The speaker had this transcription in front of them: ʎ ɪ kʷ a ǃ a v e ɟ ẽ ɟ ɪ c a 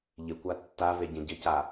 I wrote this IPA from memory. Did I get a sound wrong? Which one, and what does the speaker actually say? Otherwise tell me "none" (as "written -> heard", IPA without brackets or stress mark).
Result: ǃ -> tː